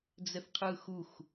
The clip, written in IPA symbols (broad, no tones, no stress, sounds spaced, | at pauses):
d͡z ɛ θ qʰ ɯː x u x